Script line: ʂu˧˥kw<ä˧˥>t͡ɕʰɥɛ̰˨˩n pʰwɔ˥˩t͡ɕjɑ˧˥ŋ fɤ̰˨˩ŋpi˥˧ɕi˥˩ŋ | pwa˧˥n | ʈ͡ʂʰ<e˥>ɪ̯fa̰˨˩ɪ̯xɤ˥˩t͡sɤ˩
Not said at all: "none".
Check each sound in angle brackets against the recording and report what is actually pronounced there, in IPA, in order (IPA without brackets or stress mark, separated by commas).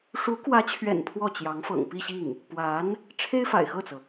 ä˧˥, e˥